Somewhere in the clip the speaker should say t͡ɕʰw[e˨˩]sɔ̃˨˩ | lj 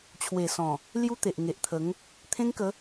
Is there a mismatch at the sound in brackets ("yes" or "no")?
no